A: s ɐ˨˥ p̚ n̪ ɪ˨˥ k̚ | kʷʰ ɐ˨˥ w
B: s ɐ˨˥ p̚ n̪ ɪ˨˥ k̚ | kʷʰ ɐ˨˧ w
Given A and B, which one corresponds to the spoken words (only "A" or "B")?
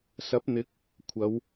B